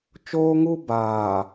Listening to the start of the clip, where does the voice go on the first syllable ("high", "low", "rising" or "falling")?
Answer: high